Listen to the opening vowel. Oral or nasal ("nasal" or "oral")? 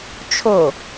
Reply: oral